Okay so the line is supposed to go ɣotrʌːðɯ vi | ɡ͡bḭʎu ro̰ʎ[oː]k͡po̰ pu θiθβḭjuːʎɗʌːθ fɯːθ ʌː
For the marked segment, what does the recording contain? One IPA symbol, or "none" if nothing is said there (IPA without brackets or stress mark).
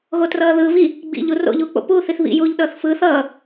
uː